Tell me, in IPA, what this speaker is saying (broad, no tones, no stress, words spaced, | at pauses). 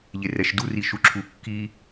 ʎerɛʃduri ʃuǁʰu kːi